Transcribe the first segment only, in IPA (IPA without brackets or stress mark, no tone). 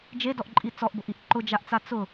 d͡ʒ